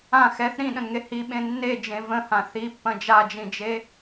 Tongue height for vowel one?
low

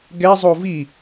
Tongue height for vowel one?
mid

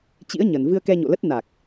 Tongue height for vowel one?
high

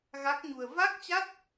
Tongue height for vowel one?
low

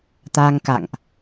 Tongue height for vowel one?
low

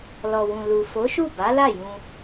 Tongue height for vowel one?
mid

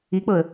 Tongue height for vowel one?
high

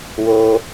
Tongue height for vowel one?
mid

